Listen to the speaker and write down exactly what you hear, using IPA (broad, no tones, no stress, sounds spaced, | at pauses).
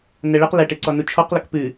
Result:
n ɛ ɭ i q l ɛ ʈ e ǀ ɔ n u t͡ʃʰ ɔ q l ɔ k p ɨ